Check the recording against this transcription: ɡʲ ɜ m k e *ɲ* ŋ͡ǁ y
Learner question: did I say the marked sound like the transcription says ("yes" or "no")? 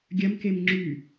no